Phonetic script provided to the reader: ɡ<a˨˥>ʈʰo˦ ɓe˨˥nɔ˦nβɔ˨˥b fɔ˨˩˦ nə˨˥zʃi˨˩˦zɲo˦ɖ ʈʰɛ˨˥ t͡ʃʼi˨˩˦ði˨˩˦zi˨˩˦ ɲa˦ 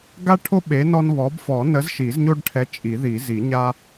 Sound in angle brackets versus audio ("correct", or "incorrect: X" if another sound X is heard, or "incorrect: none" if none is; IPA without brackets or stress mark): incorrect: a˦